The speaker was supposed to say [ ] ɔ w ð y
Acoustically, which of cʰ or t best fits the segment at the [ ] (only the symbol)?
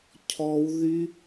cʰ